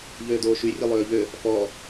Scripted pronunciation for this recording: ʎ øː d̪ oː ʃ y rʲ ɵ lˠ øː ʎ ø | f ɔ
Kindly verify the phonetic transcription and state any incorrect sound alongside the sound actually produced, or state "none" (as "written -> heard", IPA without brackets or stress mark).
none